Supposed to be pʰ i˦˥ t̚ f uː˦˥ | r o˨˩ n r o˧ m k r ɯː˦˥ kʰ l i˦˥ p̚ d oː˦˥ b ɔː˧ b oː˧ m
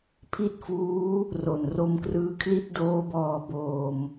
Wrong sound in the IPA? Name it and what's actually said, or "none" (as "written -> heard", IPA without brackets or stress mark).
p̚ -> t̚